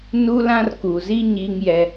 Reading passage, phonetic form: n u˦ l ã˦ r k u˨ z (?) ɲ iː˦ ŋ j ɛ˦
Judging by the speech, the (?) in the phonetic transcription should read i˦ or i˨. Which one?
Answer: i˦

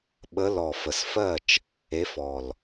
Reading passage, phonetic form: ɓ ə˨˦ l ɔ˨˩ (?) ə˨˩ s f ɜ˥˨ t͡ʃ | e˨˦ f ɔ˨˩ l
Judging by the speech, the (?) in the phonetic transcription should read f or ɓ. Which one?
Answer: f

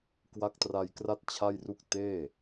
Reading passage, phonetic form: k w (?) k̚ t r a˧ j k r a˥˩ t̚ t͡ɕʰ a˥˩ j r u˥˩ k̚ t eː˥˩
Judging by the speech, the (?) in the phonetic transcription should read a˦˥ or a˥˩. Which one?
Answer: a˦˥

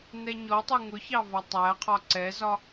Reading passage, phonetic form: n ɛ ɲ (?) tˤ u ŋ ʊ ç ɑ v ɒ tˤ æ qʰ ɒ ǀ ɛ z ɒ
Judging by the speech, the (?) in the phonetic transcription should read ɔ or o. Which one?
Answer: ɔ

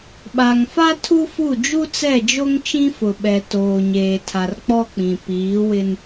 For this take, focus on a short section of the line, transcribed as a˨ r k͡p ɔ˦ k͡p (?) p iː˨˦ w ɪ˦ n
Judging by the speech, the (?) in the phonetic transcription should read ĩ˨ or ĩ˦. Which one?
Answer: ĩ˨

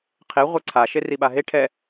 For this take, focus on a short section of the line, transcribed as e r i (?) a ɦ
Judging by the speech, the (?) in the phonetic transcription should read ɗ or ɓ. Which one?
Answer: ɓ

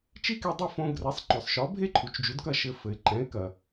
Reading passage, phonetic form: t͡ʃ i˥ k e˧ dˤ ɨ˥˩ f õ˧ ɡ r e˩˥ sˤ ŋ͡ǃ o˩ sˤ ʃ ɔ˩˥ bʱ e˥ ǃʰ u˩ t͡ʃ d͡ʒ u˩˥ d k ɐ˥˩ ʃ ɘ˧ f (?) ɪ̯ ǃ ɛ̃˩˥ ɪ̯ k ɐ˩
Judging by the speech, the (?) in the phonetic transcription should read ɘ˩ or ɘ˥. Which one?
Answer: ɘ˩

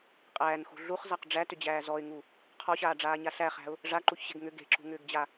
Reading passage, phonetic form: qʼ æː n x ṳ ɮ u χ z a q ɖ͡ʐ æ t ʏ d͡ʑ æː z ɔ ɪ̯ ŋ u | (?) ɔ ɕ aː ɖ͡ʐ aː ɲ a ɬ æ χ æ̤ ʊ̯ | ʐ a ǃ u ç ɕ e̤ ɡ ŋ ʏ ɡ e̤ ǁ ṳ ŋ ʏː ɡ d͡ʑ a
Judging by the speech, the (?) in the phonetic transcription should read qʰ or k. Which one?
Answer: qʰ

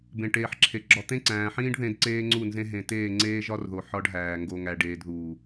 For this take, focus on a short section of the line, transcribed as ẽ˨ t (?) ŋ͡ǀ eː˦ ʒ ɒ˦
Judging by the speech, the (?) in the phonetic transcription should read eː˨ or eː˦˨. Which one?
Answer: eː˦˨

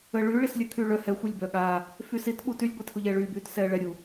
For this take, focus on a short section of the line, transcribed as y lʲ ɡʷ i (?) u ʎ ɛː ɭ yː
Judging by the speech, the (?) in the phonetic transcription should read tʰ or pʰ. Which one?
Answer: tʰ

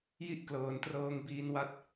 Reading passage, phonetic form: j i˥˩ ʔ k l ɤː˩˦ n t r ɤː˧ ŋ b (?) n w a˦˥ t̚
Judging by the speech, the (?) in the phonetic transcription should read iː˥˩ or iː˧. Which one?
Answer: iː˧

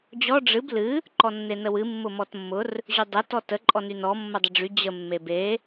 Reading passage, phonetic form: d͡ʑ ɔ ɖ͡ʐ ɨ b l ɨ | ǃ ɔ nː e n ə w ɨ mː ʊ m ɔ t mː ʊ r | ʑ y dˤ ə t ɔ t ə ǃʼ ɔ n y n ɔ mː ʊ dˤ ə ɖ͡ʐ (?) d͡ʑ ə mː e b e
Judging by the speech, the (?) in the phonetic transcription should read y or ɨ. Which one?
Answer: y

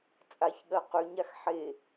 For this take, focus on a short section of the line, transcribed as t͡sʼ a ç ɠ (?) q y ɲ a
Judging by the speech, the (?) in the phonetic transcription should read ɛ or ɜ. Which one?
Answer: ɜ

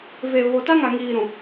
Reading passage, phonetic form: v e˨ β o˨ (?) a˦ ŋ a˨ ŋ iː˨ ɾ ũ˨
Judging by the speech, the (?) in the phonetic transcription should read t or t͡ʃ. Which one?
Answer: t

